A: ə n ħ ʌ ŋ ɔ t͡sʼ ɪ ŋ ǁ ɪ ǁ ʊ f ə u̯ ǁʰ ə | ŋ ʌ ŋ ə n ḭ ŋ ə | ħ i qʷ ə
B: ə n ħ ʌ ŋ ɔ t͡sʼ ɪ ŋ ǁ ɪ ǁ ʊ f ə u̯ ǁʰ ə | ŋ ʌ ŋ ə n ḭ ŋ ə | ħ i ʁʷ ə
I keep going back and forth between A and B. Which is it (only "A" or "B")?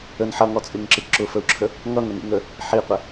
A